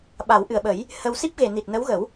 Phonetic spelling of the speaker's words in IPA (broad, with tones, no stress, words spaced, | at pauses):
ɓa˨˩˦wʔɨ˨˩ə̯ɓə˨˩˦j | hə˧w si˦˥p̚ɣe˨˩ni˨˩t̚ nə˧˥wɣə˨˩˦w